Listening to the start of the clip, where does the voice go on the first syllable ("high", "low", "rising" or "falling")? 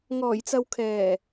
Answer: low